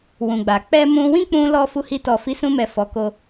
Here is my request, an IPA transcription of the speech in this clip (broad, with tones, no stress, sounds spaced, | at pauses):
w ũ˨ ɡ͡b a˨ k͡p ɛ˧ m ũ˧ w ĩ˦ k͡p ũ˧ l ɔ˦ f u˧ h i˧ t ɔ˨ f i˨˦ s ũ˧ m ɛ˨ f ɔ˨˦ k o˧